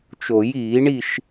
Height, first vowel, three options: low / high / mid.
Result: mid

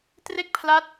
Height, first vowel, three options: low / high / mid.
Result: mid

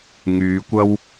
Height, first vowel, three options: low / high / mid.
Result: high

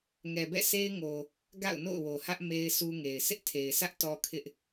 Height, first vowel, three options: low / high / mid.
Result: mid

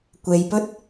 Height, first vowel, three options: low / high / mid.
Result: mid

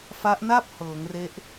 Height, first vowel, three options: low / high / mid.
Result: low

